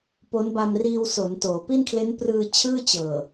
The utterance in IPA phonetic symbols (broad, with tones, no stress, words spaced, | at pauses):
po˦˥nba˧m riː˧wso˩˦ntoː˩˦ pi˥˩nkʰle˦˥nprɯː˧t͡ɕʰɯː˥˩ t͡ɕɤː˨˩